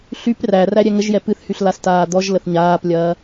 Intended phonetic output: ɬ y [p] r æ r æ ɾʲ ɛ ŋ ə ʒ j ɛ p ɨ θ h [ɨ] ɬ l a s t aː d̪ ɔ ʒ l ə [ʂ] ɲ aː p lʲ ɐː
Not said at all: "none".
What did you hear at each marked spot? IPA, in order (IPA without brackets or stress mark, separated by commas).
p, y, θ